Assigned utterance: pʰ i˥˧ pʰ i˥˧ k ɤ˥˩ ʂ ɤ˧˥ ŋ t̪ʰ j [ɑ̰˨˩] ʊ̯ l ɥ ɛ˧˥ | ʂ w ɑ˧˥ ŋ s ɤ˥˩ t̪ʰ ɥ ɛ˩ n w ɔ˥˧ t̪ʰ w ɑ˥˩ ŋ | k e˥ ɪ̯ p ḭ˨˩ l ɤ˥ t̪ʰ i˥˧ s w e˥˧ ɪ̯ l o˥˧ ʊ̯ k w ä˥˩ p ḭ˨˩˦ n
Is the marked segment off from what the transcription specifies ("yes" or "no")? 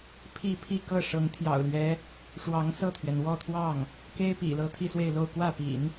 no